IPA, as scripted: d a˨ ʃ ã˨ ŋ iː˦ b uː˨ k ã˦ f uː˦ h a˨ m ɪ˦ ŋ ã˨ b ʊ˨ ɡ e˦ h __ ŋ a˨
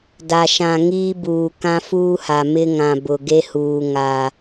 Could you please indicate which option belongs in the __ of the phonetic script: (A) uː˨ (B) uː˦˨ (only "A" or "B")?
A